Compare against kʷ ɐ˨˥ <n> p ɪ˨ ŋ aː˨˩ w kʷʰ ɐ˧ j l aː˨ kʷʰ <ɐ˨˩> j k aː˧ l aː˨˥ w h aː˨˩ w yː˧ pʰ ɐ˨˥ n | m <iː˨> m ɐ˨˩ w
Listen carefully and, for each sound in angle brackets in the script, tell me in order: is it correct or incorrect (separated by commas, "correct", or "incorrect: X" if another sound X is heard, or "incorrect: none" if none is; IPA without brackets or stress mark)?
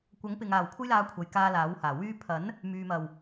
incorrect: ŋ, incorrect: ɐ˨˧, incorrect: yː˨